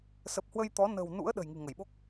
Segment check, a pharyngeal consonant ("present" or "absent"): absent